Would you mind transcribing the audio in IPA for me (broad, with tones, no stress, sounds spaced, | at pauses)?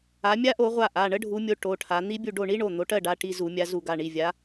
a˨˦ mʲ a˦˥ ʔ o˨˦ ʁʷ a˦˨ ʔ a˩˧˩ ɳ ə˦˥ ɖʱ u˨˦ mʲ o˨˦ ʈ o˩˧˩ ʈʰ a˨˦ n̪ i˦˥ bʲ u˦˨ ɖ o˦˨ ɳ i˦˥ ɳ o˩˧˩ n̪ o˨˦ ʈ ɜ˦˨ ɖ a˩˧˩ ʈ i˦˨ z u˧˩˧ mʲ a˨˦ z u˧˩˧ ɡ a˩˧˩ ɳ i˩˧˩ vʲ a˨˦